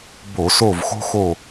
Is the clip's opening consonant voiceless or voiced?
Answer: voiced